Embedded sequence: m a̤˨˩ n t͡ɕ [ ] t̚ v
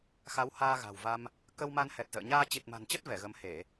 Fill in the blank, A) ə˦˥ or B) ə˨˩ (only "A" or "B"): A